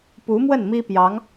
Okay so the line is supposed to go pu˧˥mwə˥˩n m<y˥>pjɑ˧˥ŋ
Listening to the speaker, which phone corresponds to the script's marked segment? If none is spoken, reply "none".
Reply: i˥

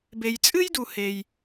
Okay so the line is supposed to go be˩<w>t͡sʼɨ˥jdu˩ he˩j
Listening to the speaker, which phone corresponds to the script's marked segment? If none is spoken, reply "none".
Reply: j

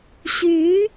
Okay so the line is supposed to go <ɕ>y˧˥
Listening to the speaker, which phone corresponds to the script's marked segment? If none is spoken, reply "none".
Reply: ɕ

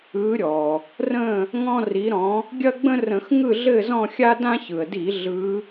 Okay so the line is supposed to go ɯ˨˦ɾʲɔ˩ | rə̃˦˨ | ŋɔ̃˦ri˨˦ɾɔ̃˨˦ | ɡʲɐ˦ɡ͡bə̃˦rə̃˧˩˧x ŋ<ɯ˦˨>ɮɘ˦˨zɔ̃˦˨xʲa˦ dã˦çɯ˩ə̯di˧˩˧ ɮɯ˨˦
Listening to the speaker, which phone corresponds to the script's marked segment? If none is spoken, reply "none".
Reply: ɯ˦˨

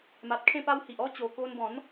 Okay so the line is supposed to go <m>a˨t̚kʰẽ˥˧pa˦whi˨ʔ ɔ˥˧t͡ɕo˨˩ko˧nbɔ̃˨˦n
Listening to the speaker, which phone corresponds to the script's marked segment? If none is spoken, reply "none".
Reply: m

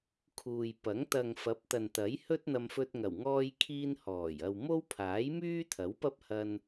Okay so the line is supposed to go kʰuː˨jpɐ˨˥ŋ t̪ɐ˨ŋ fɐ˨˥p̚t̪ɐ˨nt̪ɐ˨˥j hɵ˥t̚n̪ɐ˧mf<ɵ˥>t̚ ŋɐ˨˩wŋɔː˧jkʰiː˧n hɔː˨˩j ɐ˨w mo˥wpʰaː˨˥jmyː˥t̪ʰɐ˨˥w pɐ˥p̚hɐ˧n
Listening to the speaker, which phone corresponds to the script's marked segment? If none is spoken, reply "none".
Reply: ɵ˧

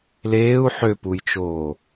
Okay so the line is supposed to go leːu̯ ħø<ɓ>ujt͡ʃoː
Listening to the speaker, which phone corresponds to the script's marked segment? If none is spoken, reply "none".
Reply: p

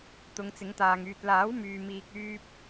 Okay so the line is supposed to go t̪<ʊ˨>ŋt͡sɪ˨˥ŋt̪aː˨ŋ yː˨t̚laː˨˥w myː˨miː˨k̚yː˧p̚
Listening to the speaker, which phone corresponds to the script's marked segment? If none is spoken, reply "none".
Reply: ʊ˨˧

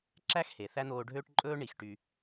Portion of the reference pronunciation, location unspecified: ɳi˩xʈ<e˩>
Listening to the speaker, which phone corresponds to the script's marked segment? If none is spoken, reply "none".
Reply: y˩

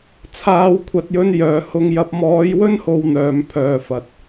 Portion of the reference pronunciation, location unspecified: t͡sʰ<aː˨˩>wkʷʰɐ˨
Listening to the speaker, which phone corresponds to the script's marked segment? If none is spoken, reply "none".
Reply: aː˨˧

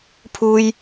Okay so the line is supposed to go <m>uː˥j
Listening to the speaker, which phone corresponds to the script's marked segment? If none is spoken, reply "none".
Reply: pʰ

